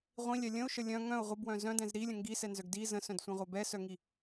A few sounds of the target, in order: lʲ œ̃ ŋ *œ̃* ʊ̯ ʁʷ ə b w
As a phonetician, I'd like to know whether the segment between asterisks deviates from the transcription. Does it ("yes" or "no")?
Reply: no